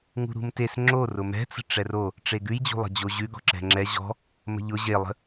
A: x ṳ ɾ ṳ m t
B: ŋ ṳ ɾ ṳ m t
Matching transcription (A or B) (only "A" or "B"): B